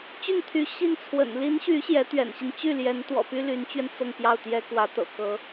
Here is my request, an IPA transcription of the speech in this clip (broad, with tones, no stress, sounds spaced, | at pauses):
t͡ɕ y˥˩ n t̪ʰ y˧˥ ɕ i˥˩ n t͡sʰ w ə̰˨˩ n l i˧˥ n ɕ y˧˥ ɕ j ɛ˧˥ t̪ ɥ ɛ̰˨˩ n ɕ i˦ n t͡ɕ y˥˩ l j ɛ˧˥ n t̪ w ɔ̰˨˩ p y˥ l y˧˥ n t͡ɕ ɥ ɛ˧ n t͡s ɤ˥˧ ŋ p j ɑ˥˩ ʊ̯ t̪ j ɛ˥ k w ä˧˥ t̪ ɤ̰˨˩ k ɤ˧˥